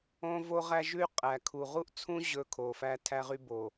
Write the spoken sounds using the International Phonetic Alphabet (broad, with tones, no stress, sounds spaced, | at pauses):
õ˦ v o˦ ʁ æ˦ ʒ ʉ˦ y̯ qʼ æ˨ kʰ u˨ ʁ u˦ ʔ t͡sʰ ũ˦ ʑ ɵ˦ kʰ o˨ f æ˦ tʰ æ˦ ʁ y˦ b o˨